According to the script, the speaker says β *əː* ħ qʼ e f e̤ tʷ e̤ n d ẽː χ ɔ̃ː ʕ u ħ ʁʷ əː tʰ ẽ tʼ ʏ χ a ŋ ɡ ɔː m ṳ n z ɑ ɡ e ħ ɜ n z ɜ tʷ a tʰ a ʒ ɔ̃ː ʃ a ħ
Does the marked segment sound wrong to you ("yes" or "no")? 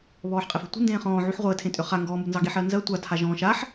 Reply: yes